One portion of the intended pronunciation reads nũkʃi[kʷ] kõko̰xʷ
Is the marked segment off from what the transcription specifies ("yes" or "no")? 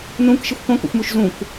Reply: yes